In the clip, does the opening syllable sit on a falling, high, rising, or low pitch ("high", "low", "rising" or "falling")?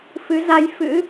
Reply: rising